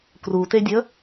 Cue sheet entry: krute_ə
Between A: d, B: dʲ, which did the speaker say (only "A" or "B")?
B